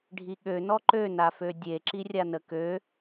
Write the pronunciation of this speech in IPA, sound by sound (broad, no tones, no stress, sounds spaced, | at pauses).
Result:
ɖʱ i ɠ ø n ɔ ǃ ø n a f ø dʲ e ǁ i rʲ a n ə k ø